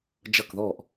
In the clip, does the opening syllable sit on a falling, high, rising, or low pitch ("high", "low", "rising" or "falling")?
falling